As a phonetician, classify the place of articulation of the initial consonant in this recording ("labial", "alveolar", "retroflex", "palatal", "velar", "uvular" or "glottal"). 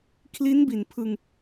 velar